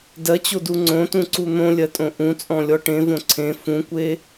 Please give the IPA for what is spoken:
dɜt͡ɕodu ŋ͡ǀõtũǀu n̪õlʲɜtʼõ ʔũt͡sʼɔ̃lʲɔ ʈẽvõ ǀʰẽ fũkʷe

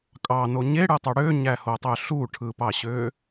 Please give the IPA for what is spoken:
kʼɑno ɲeɽɯtˤu ɽøɲæhotˤø ɬuʈʰɯpɑɕø

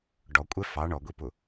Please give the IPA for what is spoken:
ɖɔ kʷʼɛfɑ ɳɔɡʷipʊ

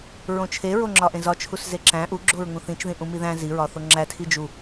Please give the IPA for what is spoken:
ɹõt͡ʃʰeɹo ŋ͡ǁɒʔẽzɒ t͡ʃʰuszeǁæ̃ ʔuɡ͡ǁoɹ ŋũθĩt͡ʃðĩ ʔũmiðæ̃ ziɹɒ θoŋ͡ǁæ tʰid͡ʒu

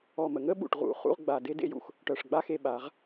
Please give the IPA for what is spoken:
ɔ˧˩mə˩˧ŋə˥ ɓṵ˧˩ʈʁṵ˩˧χṵ˥˧ʁɡ͡ba˧˩ de˥dḛ˥˧jṵ˧x | ʈœ˧˩ʂɡ͡ba˥xe˧ ɓa˩˧ʁ

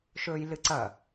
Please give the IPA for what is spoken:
ʃɵːjlɨǀɐ

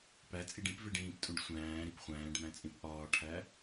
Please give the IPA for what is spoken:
pæt͡sʼiɖ ĩpveɖ ĩːptʼũɖ sʷæ̃ːɾip χʷæ̃ːɖmæ̃t͡sʼĩp ʔɒːʈʰæ

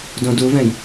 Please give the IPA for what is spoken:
dõduvɛ̃j

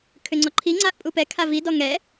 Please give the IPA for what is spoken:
kʰʏŋ͡ǀɔǃʰi ŋ͡ǀaʔpʼupɛ kʰavi dɔŋɛ

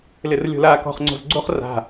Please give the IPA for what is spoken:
lɪrlʲo̤laːkɔ̤χ ŋ͡ǀo̤zɡ͡ǀoχ ra̤

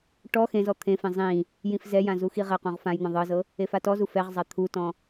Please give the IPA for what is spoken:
ʈɔ xẽzɔ t̪ʰẽfẽ zˤĩ | jĩfzɛjã zuxiʁɛqũʁ fãjn̪ɔ̃ ðˤɤzɤ | efatɔzu fɛʁzˤa t̪ʰutɔ̃

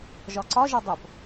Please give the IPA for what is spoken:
ʒɒǀɒ ʒɒdˤop

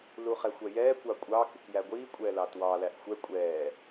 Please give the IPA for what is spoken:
luχɛxʷɛjɛː kʷɑkʷʼɑ kɪkjæɡʷiː kʷʼɛːlɑtwɑ læʔxʷɛ kʷʼɛː

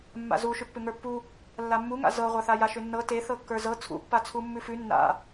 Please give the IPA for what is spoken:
mːa̰zuʃʏ pːʏŋə˞pːu | lːamːuŋa̰ zɤʁʷaθa jaʃʏnːɤ teθɤkːə˞ zɤ t͡sʰṵpːa t͡sʰumːʉfʉ nːa̰

